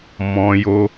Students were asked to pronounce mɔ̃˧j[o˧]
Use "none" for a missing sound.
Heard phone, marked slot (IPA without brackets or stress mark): o˧